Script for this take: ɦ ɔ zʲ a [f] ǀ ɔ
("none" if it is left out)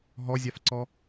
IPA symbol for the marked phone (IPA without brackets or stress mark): f